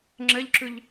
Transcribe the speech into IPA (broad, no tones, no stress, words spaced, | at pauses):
ŋ͡ǁɘʎǁʉʎ